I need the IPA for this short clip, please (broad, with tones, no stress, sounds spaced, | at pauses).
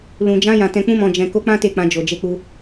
l ũ˨ d͡ʒ ã˧ j ã˨ t ɛ̃˨ k͡p ũ˧ m ɔ̃˨ d͡ʒ ɛ̃˨ k o˨˦ k͡p ã˦ t e˦˨ k͡p ã˧ d͡ʒ o˨ d͡ʒ e˧ k͡p u˧